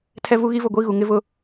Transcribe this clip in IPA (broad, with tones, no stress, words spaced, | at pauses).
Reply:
tʰɛ˦vu˦ɣi˦ vʊ˦˨ɡʷi˦ ɣu˨ŋɪ˦vʊ˦